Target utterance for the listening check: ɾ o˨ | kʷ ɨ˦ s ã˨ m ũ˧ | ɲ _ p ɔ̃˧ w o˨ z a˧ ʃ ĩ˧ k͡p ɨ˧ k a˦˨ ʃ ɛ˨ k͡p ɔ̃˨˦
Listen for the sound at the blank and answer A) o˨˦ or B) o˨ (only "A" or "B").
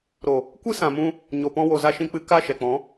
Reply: B